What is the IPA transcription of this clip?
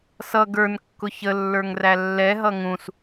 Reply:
s ʌ ɡ ə˞ n kː ʊ ç ə lː ə˞ ŋ r æ lː ɛ ɦ ʌ ŋ ũ s

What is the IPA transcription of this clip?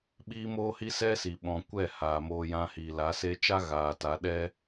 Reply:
ɓ iː˦ m oː˦ h i˦ s ɛ˦ s i˨ ɓ ɔ̃˨ kʷ ɛ˦˨ h aː˨ m oː˧ j ã˧ h iː˨ l a˨˦ s e˧ t͡ʃ a˦ ɣ aː˨ t a˨˦ ɗ ɛ˦

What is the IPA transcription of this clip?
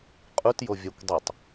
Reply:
qʼ u t j o vʲ a kʷ dˤ ɯ tˤ

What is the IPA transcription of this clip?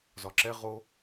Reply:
z ɒ ǁ ɛ ʁ o

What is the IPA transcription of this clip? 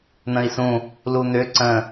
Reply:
n̪ ə̃ i̯ s ũ | l u n̪ ʏ ǀ ə̃

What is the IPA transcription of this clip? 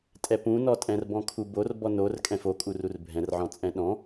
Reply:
tʼ ɛ p ũ n ɔ tʼ ɛ̃ r b ɔ̃ kʰ u b o r b ɔ n o r kʼ ɛ̃ f o kʼ u r u r bʱ ɛ̃ r ʕ ɔ̃ t͡sʼ ɛ̃ ɗ ɔ̃

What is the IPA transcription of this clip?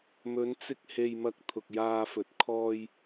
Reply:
m ɵ˨˧ n t͡s ɪ˧ k̚ h e˨ j m ɐ˨ k̚ t̪ʰ ʊ˨ k̚ j aː˧ f ɵ˨ t̚ kʰ ɔː˧ j

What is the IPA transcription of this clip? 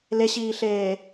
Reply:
l e ɕ iː ɬ eː

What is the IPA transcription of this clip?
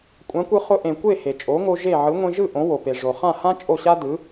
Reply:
kʷʼ ã˩˥ kʷ ɯ˧ χ ʊ˧ ʔ ẽ˩ kʷ e˥˩ h e˩ t͡ʃʼ o˩˥ ŋ o˧ ʒ e˥˩ ʕ ɯ˩˥ ŋʷ ẽ˧ ʒ ɯ˥˩ ʔ õ˩˥ w o˩ p e˩ ʐ o˩ χ ã˥˩ h ã˥ t͡ʃʼ o˥˩ ɕ a˥ d ɯ˩˥

